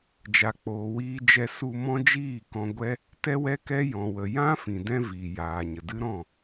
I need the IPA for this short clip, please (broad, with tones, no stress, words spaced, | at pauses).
d͡ʒa˨k͡poː˨wiː˧ d͡ʒɛ˧ su˧ mɔ̃˦d͡ʒiː˦˨kɔ̃˧ɡʷɛ˦ | tɛ˦wɛ˦kɛ˦jɔ̃˨ wə˨jã˦fĩ˨dɛ̃˧ viː˨jaː˨ɲə˨ dɨ˦ɾɔ̃˦˨